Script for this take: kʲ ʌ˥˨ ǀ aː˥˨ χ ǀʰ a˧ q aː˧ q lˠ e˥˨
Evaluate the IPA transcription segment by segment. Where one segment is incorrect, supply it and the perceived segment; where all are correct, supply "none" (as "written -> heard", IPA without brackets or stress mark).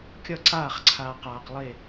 none